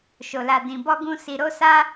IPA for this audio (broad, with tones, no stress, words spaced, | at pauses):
ʃo˧la˧ dĩ˧bɔ˦ɡũ˦ si˧ɾo˦sa˦